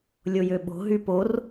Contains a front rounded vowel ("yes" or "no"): yes